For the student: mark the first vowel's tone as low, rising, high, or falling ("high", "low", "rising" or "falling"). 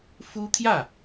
high